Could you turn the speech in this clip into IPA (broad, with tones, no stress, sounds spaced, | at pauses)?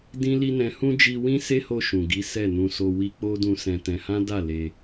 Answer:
d ĩ˦ l i˦ n ɛ̃˧ h ũ˦ d͡ʒ i˧ w ĩ˦ s e˦ h o˧ ʃ ũ˨ ɡ i˨˦ s ɛ˦˨ n ũ˧ s o˧ w i˧ k͡p o˦ d ũ˧ s ɛ̃˧ t ɛ̃˧ h ã˦ d a˦˨ l e˧